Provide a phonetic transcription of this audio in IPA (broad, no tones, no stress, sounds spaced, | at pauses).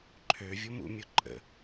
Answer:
ǃʰ ø vʲ ʊ m ṵ mʲ ʊ ǃʼ ə̰